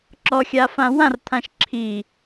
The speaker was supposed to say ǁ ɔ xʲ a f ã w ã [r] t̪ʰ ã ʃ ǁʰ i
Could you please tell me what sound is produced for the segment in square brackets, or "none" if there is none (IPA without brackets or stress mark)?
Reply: r